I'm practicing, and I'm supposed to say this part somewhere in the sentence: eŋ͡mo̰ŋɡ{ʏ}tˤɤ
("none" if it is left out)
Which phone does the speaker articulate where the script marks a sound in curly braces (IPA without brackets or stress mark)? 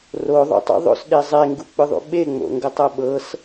ə